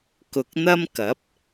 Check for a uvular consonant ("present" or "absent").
absent